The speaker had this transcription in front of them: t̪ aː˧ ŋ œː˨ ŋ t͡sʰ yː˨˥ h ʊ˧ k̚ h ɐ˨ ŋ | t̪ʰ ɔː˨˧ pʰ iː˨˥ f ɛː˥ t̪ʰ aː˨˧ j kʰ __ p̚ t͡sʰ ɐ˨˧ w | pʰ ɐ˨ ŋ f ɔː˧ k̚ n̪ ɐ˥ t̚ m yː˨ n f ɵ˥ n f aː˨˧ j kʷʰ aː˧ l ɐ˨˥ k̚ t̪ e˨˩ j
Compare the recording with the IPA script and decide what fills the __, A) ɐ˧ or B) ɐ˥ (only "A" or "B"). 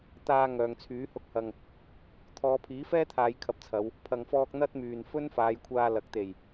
A